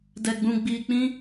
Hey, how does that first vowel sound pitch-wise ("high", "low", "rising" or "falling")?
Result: low